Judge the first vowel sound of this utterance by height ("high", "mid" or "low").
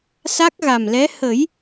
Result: low